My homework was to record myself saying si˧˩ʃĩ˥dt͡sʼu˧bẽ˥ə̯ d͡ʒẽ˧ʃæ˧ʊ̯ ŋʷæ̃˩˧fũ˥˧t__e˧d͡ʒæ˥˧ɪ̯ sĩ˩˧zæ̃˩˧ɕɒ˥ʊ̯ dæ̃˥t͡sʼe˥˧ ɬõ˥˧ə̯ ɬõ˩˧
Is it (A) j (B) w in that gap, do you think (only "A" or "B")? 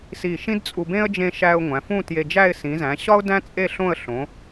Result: A